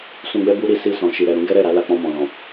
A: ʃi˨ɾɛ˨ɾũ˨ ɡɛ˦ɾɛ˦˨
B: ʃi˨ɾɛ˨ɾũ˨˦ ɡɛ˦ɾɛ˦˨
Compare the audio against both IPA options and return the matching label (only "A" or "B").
B